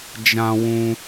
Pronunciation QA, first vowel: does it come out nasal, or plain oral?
nasal